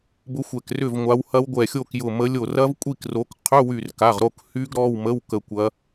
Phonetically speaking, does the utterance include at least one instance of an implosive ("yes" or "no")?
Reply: no